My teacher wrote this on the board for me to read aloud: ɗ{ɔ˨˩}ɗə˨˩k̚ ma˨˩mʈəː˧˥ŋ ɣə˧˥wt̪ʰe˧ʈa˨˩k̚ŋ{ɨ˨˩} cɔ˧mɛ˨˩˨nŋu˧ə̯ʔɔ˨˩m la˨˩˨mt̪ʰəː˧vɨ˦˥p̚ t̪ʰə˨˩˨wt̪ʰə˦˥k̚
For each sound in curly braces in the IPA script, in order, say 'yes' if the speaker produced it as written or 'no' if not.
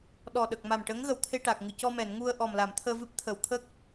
yes, yes

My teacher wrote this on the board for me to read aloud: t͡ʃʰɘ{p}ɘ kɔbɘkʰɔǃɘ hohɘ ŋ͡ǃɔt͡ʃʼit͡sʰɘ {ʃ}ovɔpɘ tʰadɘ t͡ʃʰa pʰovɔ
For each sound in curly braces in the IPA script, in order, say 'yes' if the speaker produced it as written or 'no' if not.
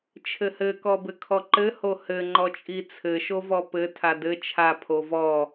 no, yes

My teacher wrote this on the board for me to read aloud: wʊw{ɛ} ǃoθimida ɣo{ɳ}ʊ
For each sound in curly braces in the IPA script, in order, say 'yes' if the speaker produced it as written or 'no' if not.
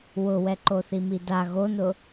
yes, no

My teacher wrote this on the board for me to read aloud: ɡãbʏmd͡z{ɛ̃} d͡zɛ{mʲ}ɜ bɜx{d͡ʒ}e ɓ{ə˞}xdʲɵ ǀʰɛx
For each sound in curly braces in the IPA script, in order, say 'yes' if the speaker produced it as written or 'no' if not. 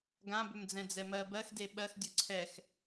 yes, no, no, no

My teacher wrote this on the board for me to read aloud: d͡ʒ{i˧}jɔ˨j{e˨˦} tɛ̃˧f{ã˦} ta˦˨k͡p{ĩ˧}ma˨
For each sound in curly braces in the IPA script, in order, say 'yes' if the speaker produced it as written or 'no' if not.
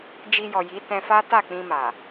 yes, no, no, yes

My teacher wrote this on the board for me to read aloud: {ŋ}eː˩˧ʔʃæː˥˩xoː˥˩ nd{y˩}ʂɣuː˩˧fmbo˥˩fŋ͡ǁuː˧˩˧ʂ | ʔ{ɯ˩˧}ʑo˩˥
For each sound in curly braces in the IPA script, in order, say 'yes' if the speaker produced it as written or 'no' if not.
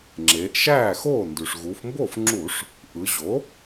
no, yes, yes

